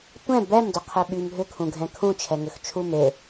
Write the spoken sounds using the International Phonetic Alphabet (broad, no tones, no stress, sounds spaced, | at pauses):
tʷ ɛ̃ b ɛ m d ʏ qʰ e ɓ y m ɦ ʏ kʰ ũ ɡʱ ɛ̃ kʰ ũ t͡ʃʰ ɛ ŋ ʏ x t͡ʃʰ u m e